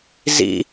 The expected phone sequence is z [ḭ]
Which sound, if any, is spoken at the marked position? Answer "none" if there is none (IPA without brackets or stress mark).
ḭ